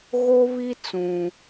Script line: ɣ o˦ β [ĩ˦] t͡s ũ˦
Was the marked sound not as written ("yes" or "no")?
yes